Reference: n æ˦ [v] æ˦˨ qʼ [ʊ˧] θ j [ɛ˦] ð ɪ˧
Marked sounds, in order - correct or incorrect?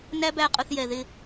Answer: incorrect, correct, incorrect

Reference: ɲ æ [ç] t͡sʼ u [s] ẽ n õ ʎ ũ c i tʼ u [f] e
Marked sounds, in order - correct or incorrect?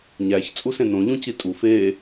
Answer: correct, correct, correct

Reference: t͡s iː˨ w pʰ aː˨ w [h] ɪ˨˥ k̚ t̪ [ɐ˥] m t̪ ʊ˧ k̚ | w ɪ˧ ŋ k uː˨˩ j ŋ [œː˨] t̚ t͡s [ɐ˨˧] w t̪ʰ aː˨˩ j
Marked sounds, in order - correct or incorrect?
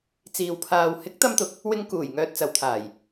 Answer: correct, correct, correct, correct

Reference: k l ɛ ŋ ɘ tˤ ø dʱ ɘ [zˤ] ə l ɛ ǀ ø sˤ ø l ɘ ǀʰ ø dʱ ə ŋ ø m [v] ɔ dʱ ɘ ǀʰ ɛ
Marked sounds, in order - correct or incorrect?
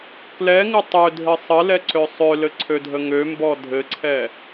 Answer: incorrect, incorrect

